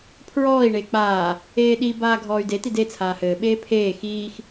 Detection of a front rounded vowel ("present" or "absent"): present